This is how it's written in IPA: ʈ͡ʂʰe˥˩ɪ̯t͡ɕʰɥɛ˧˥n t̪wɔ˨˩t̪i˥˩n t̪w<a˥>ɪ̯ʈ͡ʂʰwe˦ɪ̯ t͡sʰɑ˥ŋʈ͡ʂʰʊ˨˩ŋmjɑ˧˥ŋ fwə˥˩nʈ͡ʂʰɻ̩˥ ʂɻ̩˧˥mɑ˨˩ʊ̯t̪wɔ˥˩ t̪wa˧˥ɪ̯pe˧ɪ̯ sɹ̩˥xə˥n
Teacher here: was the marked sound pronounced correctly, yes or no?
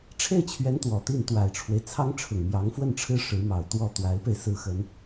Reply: no